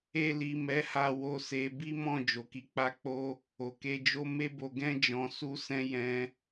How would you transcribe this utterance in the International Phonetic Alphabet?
e˧li˨ mɛ˨˦ha˧ wo˧se˧ bi˦mɔ̃˦˨ d͡ʒo˨ki˨˦k͡pa˦k͡po˦ | o˨ke˧d͡ʒo˦ me˦bo˧ɡɛ̃˦ d͡ʒɔ̃˧su˦sɛ̃˦ jɛ̃˧

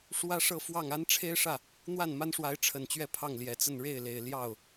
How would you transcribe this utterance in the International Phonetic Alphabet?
ʂwä˥ʂɤ˥˧fwɑ˥˩ŋ a˥n ʈ͡ʂʰe˥ɪ̯ʂä˥˩ | n̪wa˥˩nma˥nʂwa˧˥ɪ̯ ʈ͡ʂʰə˨˩nt͡ɕɥɛ˥˧ pʰɑ˥˩ŋljɛ˨˩t͡sə˥˧n ɻe˥˩ɪ̯le˨˩ɪ̯ ljɑ˥˩ʊ̯

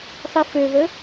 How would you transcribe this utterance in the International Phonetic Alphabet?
sˤiføvə

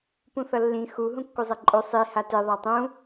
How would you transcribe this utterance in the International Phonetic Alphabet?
pũθʌlːĩ xu ɦũkːuzˤʌǃʼo sˤi hate ðˤatˤũ

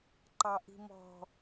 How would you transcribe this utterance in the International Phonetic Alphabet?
ǃɑʔi̤mɔ̤

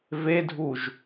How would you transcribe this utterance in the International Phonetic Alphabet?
vedʱuʒ

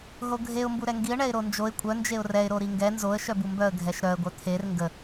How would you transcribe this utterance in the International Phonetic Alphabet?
ɦoɡʱeʊ̯ mbuɾɛŋɡiə̯ ɳɛɪ̯ɾond͡ʒoɪ̯ kʷʼœ nd͡ʒeʊ̯rɛɪ̯ ɾoɾiŋɡɛ nzoə̯ ʃœbumbœə̯ ɡʱɛʃɾœə̯ ɡʷœt̪ʰer ŋɡə

